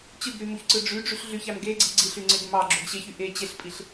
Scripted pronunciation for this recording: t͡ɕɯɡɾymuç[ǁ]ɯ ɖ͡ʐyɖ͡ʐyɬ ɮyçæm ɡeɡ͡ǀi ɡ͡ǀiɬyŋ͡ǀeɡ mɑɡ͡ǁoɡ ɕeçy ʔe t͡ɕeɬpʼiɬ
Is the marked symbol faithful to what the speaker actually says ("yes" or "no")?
no